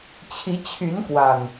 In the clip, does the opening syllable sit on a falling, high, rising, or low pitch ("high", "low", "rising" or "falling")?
rising